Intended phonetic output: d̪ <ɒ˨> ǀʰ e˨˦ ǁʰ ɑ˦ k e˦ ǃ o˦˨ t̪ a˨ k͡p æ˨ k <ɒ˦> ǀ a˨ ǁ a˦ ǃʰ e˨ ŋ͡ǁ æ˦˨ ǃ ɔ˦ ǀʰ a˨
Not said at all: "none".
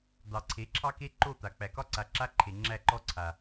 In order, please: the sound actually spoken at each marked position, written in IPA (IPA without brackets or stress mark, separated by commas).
ɑ˨, ɒ˦